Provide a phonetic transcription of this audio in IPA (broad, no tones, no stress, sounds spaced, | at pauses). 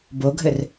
b o ɡʱ ɘ r